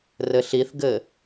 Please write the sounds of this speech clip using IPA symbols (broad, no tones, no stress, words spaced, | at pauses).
rɘɬiθɡɘ